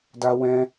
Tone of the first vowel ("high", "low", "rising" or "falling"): high